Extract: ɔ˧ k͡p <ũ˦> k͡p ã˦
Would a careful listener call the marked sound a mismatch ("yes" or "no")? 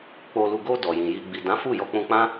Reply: yes